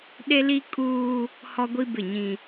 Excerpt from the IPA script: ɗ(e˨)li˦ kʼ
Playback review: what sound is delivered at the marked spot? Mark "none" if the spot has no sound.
e˦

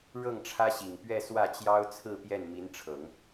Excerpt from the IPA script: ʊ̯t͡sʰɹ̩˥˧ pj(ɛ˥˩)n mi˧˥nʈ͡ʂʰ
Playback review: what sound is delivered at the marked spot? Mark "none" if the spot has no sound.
ɛ˥˩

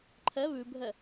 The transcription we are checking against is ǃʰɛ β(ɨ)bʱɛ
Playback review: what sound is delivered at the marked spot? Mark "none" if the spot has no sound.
ʉ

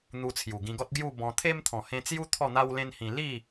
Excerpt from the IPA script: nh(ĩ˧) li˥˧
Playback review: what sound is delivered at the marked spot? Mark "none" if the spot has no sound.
ĩ˧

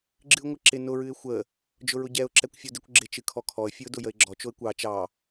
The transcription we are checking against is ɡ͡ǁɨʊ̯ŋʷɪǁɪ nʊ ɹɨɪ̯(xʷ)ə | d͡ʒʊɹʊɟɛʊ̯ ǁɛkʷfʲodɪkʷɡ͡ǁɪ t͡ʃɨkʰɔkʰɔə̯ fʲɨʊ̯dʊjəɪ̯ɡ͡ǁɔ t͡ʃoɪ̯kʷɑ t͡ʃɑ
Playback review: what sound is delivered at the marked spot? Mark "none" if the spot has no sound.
xʷ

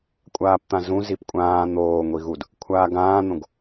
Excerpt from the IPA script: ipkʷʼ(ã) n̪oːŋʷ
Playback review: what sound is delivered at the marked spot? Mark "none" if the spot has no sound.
ãː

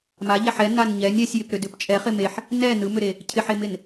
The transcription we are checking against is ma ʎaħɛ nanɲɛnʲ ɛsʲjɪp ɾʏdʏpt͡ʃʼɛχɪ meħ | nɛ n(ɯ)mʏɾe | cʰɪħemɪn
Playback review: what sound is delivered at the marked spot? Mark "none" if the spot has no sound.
ɯ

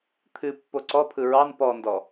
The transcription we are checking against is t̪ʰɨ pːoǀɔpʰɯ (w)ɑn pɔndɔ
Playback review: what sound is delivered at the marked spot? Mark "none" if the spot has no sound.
ɹ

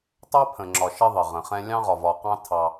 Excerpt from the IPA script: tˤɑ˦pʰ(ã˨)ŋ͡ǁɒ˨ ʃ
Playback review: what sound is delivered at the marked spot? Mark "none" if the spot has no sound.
ə̃˨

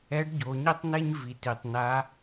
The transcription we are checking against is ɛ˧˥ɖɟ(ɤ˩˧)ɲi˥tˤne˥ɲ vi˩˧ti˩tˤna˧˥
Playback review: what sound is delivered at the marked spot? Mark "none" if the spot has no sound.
o˩˧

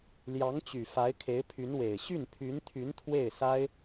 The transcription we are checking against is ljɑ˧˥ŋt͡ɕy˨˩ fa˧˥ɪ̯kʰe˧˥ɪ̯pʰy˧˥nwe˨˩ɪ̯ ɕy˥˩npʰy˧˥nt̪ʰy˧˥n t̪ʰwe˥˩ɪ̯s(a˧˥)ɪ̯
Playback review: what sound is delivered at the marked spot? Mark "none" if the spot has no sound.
a˥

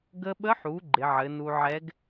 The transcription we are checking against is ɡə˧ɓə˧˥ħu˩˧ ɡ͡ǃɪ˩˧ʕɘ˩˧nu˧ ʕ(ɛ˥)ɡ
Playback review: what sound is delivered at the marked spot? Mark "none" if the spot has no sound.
ɛ˧˥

